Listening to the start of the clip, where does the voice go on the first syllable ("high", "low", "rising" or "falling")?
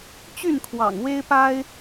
falling